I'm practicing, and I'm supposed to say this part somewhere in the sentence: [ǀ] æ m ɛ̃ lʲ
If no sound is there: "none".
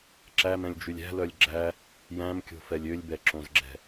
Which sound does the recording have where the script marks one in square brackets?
ǁ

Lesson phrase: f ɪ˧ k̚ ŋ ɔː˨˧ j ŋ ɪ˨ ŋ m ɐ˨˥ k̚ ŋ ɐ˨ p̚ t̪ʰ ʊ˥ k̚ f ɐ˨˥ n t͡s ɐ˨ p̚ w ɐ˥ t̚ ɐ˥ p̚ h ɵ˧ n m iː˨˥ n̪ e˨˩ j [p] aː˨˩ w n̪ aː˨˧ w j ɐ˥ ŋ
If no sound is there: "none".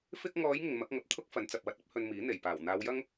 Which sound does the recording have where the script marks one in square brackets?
p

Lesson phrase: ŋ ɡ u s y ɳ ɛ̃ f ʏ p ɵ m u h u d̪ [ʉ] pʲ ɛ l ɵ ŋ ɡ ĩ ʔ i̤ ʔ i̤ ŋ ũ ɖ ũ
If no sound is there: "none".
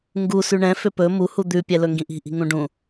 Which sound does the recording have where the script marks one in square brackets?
ʉ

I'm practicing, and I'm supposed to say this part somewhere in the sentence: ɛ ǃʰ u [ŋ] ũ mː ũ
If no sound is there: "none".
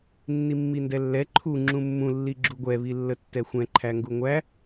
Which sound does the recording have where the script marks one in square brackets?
ŋ͡ǁ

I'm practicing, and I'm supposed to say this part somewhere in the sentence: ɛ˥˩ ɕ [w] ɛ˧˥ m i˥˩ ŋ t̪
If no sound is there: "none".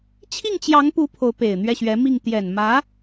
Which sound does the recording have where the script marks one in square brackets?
ɥ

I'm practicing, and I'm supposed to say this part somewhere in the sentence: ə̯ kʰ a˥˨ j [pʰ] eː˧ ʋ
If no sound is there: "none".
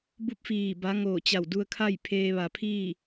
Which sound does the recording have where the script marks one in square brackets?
pʰ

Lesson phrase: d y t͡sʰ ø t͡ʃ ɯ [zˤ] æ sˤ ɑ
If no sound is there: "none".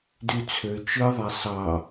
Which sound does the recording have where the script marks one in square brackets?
ðˤ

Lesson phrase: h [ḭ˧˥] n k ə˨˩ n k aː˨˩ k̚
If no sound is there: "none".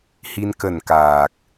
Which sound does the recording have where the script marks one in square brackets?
i˧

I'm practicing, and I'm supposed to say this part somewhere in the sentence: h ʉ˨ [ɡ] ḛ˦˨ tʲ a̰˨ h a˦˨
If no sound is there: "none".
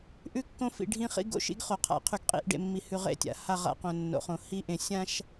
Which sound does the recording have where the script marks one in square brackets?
ʁ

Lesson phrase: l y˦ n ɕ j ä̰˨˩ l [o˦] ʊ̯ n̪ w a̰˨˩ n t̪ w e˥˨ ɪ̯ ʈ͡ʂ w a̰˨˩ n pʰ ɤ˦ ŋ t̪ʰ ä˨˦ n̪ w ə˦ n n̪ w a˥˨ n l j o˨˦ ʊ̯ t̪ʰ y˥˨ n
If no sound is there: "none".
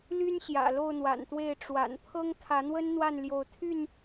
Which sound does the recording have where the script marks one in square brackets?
o˥˨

